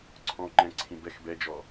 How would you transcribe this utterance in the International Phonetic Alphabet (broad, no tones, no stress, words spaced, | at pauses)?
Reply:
ǀʰɔ̃ ŋ͡ǃɛ̃ǀʰĩ bɛx bɛd͡ʒɔ